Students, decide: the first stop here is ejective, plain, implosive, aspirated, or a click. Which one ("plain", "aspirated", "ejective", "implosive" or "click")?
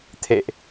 aspirated